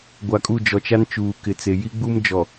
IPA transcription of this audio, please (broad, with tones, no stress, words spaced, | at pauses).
ɡʷa˨kʼu˦˨d͡ʒɔ˨t͡ʃa˦n t͡ʃuː˨kɪ˨t͡se˨ ji˦ɡ͡bu˦md͡ʒɔ˨